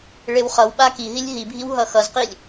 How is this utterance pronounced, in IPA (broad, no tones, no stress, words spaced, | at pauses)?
ɭewχʌwɓa ki ɦilʲɦibʱiw ɦʌxʌzqilʲ